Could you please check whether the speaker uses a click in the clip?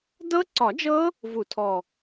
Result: yes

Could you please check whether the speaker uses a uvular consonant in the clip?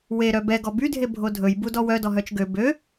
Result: no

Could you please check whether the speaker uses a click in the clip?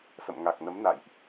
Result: no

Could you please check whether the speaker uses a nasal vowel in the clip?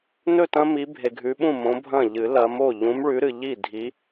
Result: yes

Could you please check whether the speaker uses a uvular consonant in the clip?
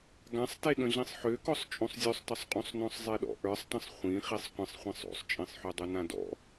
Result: yes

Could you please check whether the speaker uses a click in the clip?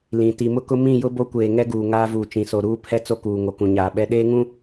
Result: no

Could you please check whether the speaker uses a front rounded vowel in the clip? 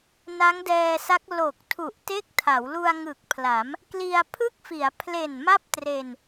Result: no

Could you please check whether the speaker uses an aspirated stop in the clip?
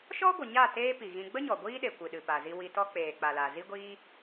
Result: no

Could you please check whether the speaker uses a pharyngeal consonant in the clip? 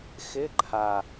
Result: no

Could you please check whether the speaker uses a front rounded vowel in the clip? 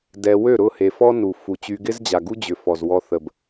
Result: yes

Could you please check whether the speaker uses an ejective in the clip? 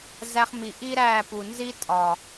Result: yes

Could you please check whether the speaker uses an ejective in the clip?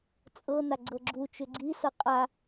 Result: yes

